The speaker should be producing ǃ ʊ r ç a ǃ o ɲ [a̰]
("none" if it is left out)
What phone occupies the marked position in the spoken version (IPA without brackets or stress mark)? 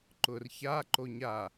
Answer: a